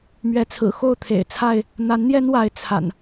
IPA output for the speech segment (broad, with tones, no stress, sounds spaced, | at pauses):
m ɥ ɛ˨˦ t͡sʰ ɹ̩˨˩ x o˥˨ ʊ̯ t̪ʰ ḛ˨˩ ɪ̯ t͡sʰ a˥˨ ɪ̯ | n̪ a˨˦ n n̪ j ɛ˦ n w a˨˦ ɪ̯ t͡sʰ a̰˨˩ n